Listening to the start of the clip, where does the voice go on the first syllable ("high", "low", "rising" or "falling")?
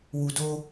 low